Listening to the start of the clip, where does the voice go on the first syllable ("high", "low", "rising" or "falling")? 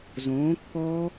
rising